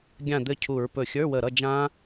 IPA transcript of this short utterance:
ɡʲ ã˥˨ d̪ ɘ˥˨ cʰ u˧˩˧ ɹ p ɵ˧˩ xʲ ə˞˧˥˧ w ə˧˩ ɾ ʌ˥˨ d͡ʒ ã˦˥

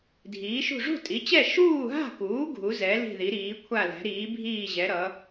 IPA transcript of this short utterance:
dʱ iː˩˥ ʃ ṳ˥˨ ʐ ṳ˥˨ tʼ i˩˥ t͡ɕ ɛ˥˨ ʃ uː˥˨ ɦ a̤˥˨ k uː˩˥ ɡʱ u˩˥ z ɛ˩˥ l i̤˥˨ ð i˩˥ ɾ iː˩˥ kʷʰ a˥˨ l ɛ̤˩˥ ɾ iː˩˥ bʱ iː˥˨ ʑ ɛ˩˥ ɾ ʌ˩˥

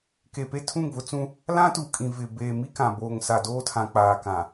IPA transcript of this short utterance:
k e˨ p e˦ tʰ ũ˦˨ ŋ v ʊ˦ t͡s ũ˦ | l ã˦ t uː˨ kʼ ĩ˨ v ɪ˨ b eː˨ m i˦ k ã˨ b oː˨ ŋ s a˨ d oː˦ tʰ ã˨ k͡p aː˨ k ã˨

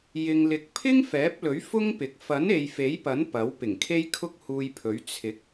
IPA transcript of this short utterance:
j ɪ˨ ŋ l ɪ˨˥ k̚ pʰ ɪ˥ ŋ f ɛː˨˥ p̚ l ɵ˨˥ ɥ f ʊ˥ ŋ p ɪ˨˥ k̚ f ɐ˨˥ n e˨ j f e˨˥ j p ɐ˨˥ n p ɐ˨˥ w p ɪ˨˩ ŋ kʰ e˥ j kʰ ʊ˥ k̚ h uː˧ j pʰ ɵ˨˥ ɥ t͡sʰ ɪ˨˥ k̚

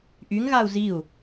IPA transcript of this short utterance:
ʔ y ŋ ɣ a u̯ z i u̯

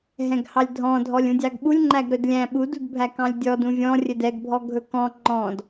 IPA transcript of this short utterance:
ɦ ɛ̃ ɡ h ɑ lʲ dʱ ɔ̃ dʱ ɔ lʲ ũ dʲ ɑ ɡ ɓ u lʲ ŋ͡ǃ æ ɡ ɾ ɵ d lʲ æ̃ ɓ u d u d bʱ æ k ɑ̃ lʲ dʲ ɔ d ũ vʲ ɔ̃ rʲ ɵ d ɛ ɡ bʱ ɔ ɡʱ ɵ k ɔ̃ ŋ͡ǃ ɔ̃ d

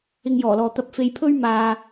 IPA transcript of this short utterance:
ɪ˧ ŋ j ɔː˨˩ l ɔː˨ t̪ ɐ˧ p̚ f e˧ j pʰ ɵ˥ ɥ m aː˧

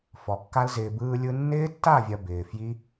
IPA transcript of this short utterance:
f ɔ˨ kː a˧ l z ɪː˨ b ɯː˧ lʲ ɯ˧ nː ɪː˦ tː a˦˨ vʲ ɐ˨ b ɪː˨ f j i˦

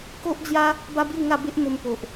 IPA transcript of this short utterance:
k o˦ ʔ d͡z j a˦ | b a˦ b j u˥˧ ŋ a˥˧ b e˦ ʔ m o˧ m p o˨ ʔ

